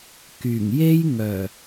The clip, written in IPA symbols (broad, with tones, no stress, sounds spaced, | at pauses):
k yː˨˩ ŋ j e˥ j ŋ œː˨˩